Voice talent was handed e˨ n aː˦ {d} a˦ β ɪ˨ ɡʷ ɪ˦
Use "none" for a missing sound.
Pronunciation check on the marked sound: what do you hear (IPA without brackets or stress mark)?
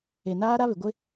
ɾ